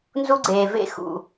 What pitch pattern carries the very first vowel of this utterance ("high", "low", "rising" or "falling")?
high